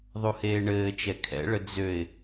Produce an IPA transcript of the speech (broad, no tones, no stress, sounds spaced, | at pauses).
ðˤ u h eː ɳ ɘː t͡ʃ ɛ kʰ ɛ̰ ɭ ə d͡z ø ɪ̯